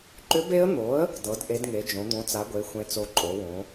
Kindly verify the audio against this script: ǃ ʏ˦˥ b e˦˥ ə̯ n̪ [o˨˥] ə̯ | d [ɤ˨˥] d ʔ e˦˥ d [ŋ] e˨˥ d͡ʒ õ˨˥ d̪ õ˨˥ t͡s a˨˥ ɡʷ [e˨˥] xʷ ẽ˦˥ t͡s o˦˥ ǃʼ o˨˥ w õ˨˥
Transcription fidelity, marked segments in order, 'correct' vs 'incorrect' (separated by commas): correct, correct, correct, correct